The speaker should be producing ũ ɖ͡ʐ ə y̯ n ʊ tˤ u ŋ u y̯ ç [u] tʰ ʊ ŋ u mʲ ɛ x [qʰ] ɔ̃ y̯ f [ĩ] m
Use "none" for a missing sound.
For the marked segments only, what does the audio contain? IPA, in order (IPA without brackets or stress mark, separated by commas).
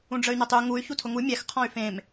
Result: u, qʰ, ẽ